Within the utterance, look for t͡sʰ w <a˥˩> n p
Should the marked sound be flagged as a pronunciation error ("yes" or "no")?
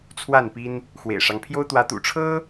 no